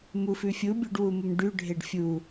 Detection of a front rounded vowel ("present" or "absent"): present